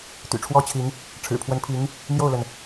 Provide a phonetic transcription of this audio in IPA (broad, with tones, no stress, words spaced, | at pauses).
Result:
t̪y̰˨˩ʈ͡ʂʰwɔ˥t͡ɕʰi˧˥ŋ | ʈ͡ʂʰɻ̩˨˩pʰwə˧˥npʰi˧˥ŋ | mjo˥˩ʊ̯lə˩n